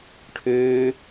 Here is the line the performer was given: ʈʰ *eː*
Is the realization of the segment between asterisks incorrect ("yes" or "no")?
yes